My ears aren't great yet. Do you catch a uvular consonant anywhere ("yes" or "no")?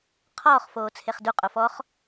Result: yes